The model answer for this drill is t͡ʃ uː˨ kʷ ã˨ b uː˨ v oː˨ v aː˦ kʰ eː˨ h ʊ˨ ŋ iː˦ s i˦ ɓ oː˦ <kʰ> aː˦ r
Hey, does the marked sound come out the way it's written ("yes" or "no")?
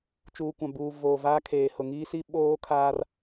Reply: yes